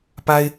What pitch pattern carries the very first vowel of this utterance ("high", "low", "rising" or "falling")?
high